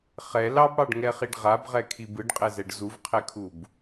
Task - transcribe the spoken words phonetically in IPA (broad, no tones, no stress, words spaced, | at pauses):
χɛ lɑbɽɑɖŋɛχiɖ ʁabʁɛkʰi bɯɖqʼɛzɛɖ zuvqʰɛkʰub